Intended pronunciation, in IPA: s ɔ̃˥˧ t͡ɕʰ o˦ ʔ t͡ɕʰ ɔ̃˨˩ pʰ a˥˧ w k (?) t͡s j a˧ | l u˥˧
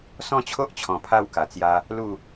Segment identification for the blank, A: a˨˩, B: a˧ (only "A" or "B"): A